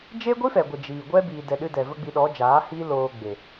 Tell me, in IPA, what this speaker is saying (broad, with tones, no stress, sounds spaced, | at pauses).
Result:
d͡ʒ e˦ ɡʷ i˦ f ɛ˨ ɡʷ ə˨ d͡ʒ iː˨ ɡʷ ɛ˦ b iː˨ d ɛ˨ ɗ ɨ˧ d ɛ˨ v ə˦ ɡ͡b i˧ ɗ ɔ˨˦ d͡ʒ aː˨˦ h iː˦ l oː˧ ɡ͡b e˨